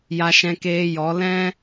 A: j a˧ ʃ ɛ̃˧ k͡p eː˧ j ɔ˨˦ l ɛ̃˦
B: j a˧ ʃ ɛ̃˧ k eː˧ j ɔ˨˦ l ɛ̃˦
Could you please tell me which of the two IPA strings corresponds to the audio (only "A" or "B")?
B